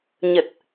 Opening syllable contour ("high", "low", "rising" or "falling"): low